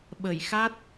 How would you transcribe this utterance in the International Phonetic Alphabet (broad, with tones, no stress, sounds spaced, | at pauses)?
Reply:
ɓ ə˧˩ j x a˦˥ t̚